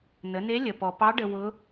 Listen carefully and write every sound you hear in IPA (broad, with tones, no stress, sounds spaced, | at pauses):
n ə˩˧ n e˧˥ lʲ ə˩ p ɔ˩ p ɑ˧˥ ɖ ə˧ w ʊ˧˥